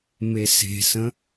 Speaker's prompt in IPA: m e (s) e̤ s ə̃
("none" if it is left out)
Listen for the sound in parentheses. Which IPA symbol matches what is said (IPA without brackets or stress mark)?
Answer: s